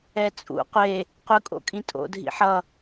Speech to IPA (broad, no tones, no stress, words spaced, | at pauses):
ɛt͡sʼṵ qʷe | qʷɯkʼo̰kʼĩ tʼo̰dʱḭ ħʌ